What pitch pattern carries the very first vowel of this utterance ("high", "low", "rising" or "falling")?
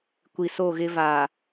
low